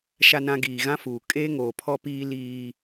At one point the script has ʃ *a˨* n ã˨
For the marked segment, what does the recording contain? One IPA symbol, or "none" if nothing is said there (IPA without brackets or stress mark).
a˨